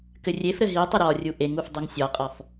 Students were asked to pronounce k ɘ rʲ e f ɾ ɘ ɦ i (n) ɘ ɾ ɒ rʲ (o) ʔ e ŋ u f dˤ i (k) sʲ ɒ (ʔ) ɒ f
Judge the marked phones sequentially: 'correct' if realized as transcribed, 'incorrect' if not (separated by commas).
incorrect, incorrect, incorrect, incorrect